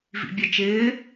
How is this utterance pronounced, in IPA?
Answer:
v ḭ bʲ ə t͡ʃ ɪː

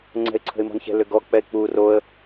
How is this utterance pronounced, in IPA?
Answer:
ŋ͡ǀ ɛ̤ ɪ̯ ǀʰ ə̤ ɪ̯ m ɔ̤ n ç ɛ̤ l ʏ ɡ ɔ k͡p ɛ ɪ̯ k͡p u r o ə̯

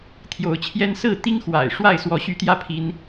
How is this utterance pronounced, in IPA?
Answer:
t̪ʰ j o˨˦ ʊ̯ t͡ɕʰ j ɛ˦ n s ɹ̩˥˨ t̪ i˦ ŋ x w a̰˨˩ ɪ̯ ʂ w a˥˨ ɪ̯ s w ɔ˨˦ ɕ y˨˦ t̪ j ä˦ pʰ i˦ n

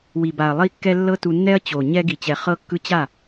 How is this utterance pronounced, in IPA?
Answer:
w i˨ b a˨ ɐ̯ lˠ i˧ kː ɛ˧ lː ɤ˦ t u˧ nː ɛ˦ ɐ̯ t͡ɕ o˨ ɲ ɛ˧ ɡ i˨ t͡ɕ ɛ˨ χ ɤ˧ kː ɯ˧ t͡ɕ a˦˨

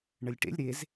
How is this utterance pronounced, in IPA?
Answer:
ɳ ə lʲ ʈ ḛ lʲ ɾ e z

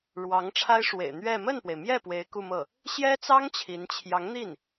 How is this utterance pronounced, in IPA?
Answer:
ɻ w ɑ˧˥ ŋ ʈ͡ʂʰ a˥ ɪ̯ ʂ w ḛ˨˩ ɪ̯ n̪ ɥ ɛ˥˧ m ə˥˩ n p w e˩ ɪ̯ m j ɛ˥˩ p w e˧˥ ɪ̯ k u˥˧ m ɤ˥˩ | ɕ j ɛ˥ t͡s ɑ˥ ŋ t͡ɕʰ i˧˥ n t͡ɕʰ j ɑ˧˥ ŋ n̪ i˥˩ n

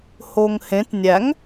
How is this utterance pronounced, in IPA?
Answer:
h o ŋ h ẽ t nʲ æ ŋ

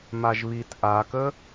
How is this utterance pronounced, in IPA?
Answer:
m a ʒ β i t ʔ a k ə

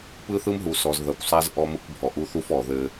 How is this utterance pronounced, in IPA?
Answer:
p ɯ˦ θ ɯ˦ m ɦ u˨ s ɔ˨ z ð ɐ˨ kʷ sˤ a˦ z ʔ ɔ˦ m ɯ˦ kʷ bʱ ɔ˨ ʔ u˦ θ u˦ f ɔ˨ ð ɘ˦

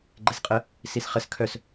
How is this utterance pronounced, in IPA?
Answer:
ɡ͡ǃ e s qʼ ə | s i s χ ə s kʰ œ s

